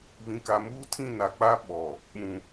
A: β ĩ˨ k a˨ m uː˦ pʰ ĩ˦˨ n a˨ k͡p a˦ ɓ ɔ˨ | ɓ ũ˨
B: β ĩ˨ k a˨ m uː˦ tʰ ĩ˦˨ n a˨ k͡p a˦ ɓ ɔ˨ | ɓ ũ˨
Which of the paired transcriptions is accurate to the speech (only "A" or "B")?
B